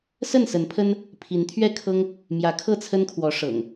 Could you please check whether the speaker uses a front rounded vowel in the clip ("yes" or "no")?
no